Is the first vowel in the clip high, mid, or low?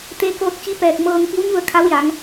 mid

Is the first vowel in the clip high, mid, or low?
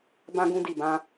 low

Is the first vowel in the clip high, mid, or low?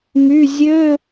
high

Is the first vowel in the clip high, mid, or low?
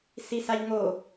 high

